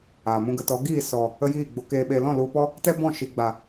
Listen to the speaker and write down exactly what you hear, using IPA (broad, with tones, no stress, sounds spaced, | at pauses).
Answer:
aː˨ m ũ˦ ɡ ə˧ t ɔ˨˦ ɡ iː˦˨ s ɔ˨ | ə˦ j iː˦˨ ɡ͡b o˨ k eː˨ ɓ eː˨ l ɔ̃˦˨ l u˧ p ɔ˦ | t ɛ˦ b ɔ̃˦˨ ʃ i˨ ɡ͡b a˨